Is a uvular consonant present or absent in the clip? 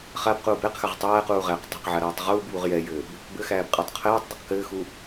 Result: present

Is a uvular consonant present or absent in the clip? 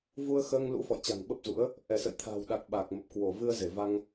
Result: absent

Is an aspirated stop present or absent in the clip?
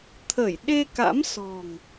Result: present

